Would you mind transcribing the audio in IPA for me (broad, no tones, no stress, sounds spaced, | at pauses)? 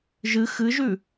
ʒ ɨ x ɨ ʒ ʉ